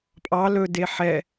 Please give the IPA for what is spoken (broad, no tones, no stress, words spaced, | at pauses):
pʼɑ lɵde ħɛ